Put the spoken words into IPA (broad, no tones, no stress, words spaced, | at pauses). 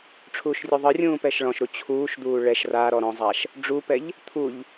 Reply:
ʈ͡ʂʰuːʃrʲuðˤɯrʲũː pɛʃɭɔ̃ʃɾu t͡ɕʰuːʃd̪uː ɭɛʃ raɾɔ ɾɔ̃zˤaʃ | ɖ͡ʐupɛʎ | t̪ʰuʎ